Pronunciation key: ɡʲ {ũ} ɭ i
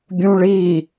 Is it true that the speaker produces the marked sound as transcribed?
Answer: yes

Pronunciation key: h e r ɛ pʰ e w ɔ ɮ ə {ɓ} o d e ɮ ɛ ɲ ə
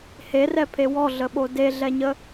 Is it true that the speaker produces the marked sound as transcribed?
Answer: yes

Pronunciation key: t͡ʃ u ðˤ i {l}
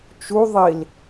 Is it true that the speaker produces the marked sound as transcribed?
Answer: yes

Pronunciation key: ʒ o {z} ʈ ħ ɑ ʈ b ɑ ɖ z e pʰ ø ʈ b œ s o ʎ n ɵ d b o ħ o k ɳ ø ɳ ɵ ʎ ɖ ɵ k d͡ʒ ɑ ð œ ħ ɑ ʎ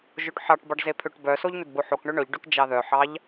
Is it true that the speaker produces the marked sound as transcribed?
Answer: no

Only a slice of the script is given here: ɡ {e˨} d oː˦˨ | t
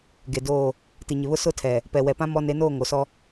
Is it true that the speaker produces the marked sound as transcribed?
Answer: yes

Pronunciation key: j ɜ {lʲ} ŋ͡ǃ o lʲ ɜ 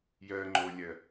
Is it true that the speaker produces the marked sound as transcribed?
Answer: no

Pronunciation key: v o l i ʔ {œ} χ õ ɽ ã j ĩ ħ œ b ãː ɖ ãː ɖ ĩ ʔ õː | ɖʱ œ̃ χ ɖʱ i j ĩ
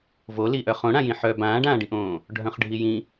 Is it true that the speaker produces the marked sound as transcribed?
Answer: yes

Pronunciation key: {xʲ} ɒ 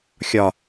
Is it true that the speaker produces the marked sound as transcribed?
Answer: yes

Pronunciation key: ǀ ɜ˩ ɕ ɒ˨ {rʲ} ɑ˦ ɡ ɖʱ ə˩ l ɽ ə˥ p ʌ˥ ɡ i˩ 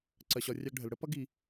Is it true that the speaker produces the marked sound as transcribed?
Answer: yes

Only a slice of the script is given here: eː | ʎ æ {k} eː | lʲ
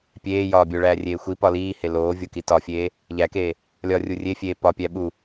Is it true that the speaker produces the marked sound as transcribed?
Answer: yes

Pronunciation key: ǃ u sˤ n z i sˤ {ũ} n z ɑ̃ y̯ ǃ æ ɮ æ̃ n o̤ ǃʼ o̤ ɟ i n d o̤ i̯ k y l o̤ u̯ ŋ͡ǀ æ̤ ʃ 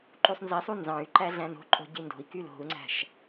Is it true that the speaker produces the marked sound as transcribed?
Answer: no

